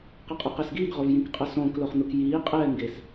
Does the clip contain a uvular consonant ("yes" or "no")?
yes